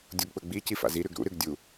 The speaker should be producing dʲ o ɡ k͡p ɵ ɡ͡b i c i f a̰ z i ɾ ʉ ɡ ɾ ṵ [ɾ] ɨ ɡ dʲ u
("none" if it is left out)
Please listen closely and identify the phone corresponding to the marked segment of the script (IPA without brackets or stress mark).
ɾ